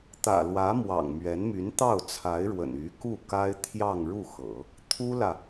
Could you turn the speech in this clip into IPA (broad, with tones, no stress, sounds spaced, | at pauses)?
t̪ ä̰˨˩ l w ä˧˥ m w ɑ̰˨˩ ŋ m ɥ ɛ˧˥ n m y˧˥ n t̪ ɑ˥˩ ʊ̯ t͡sʰ a˧˥ ɪ̯ ɻ w ə̰˨˩ n y˧˥ k u˥˩ k a˥ ɪ̯ t̪ʰ j ɑ˥˧ ŋ ɻ u˥˩ x ɤ̰˨˩˦ | t̪ʰ u˥ l ä˨